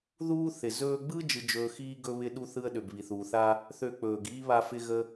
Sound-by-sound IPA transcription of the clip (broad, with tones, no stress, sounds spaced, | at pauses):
ð uː˥ θ ɪ˩ z ɵː˧ ɡ͡b ɯ˥ d͡ʒ ɯ˧ d͡ʒ ɵː˧ x iː˥ ɡ ɵ˥ β ɪ˥ ɗ u˥ θ ɯ˥ ə̯ ɗ ø˩ b β i˩ θ uː˩ θ a˥ | θ ø˧ k͡p ɵː˩ ɡ iː˥ β a˧ f ɪ˧ ɣ ə˥